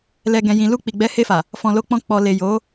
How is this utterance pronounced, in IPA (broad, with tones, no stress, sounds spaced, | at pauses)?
l ɛ˨ ɡ ɛ̃˨ j ĩ˨ l u˧ k͡p i˨ ɡ͡b ɛ˨˦ h e˧ f a˨ | f ɔ̃˨ l o˨˦ k͡p ɔ̃˧ k͡p ɔ˨ l e˨ j o˨˦